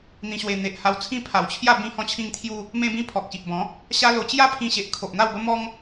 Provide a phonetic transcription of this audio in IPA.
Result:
n̪ ĩ˧ ɕ w e˧ n̪ e˨ ʔ h a˧ w t͡sʰ ĩ˦ pʰ a˨˩ w t͡ɕʰ j a˥˧ b ĩ˧ h ɔ̃˧ t͡ɕʰ ĩ˧ ŋ t̪ʰ j u˧ | m ẽ˧ b ĩ˧ pʰ ɔ˨ k̚ ɕ i˨ ʔ b ɔ̃˨˦ | ɕ a˦ l o˧ t͡ɕ j a˥˧ pʰ ĩ˧ ɕ e˨ ʔ kʰ o˨ ʔ n̪ a˥˧ w b ə˦ m ɔ˦ ŋ

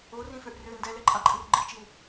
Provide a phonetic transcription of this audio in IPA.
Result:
o r ĩ f ø ʔ r ø n d ɛ l ɛ ǃʼ ã ǃʼ i r ɡ͡ǃ i t͡ʃ i w

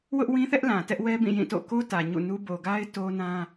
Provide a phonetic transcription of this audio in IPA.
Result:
w ʊ˦ ʔ w ĩ˦ θ ɛ˦ ʔ l ã˨ t ɛ˦ ʔ w ɛ˦ b ĩ˦˨ j ĩ˦˨ t o̰˦˨ k o˦ t ä˨ ɲ ṵ˦˨ n u˦ b o˨ ɡ a˦ ɪ̯ t o˦ n ã˦

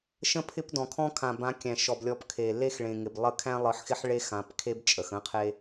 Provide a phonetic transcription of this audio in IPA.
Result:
ʃ ə̃˦ pʰ ɪ˦ p d ɔ̃˨ kʰ ɔ̃˦ kʰ ã˨ b ã˨˦ kʲ æ̃˨ ʃ ɔ˨ b lʲ ɔ˨˦ p kʰ e˨ lː e˦ x ɭ ẽ˨ ŋ ɪ˨ b lˠ ə˦ kʰ æ̃˦ lˠ ɯ˨˦ ħ x ɪ˦ ħ ɭ e˦ x ã˨˦ p kʰ e˦ b t͡ʃʼ ə˨ x ə̃˦ qʰ e˦

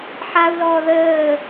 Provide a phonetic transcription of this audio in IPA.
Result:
ħ a u̯ l ɔː ð əː

